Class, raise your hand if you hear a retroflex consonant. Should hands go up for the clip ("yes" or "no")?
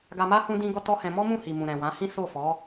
no